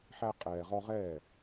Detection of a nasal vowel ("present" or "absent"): absent